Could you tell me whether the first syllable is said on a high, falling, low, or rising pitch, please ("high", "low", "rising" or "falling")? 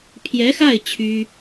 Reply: rising